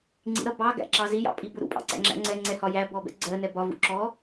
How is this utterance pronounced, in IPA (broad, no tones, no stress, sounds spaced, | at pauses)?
ŋ͡ǀ ḭ ɾ ʌ b ɑ ɡ æ̰ ǁ ɑ z i j ɑ̰ pʼ i b ʊ ɾ ṵ pʼ ɑ̰ ǀ æ̰ ŋ͡ǁ æ̰ ŋ͡ǀ ɛ ŋ͡ǀ ɛ h ɒ j æ b ɔ b ɛ̰ ɡ͡ǀ ɜ n ɛ b ɒ v ṵ ǁ ɔ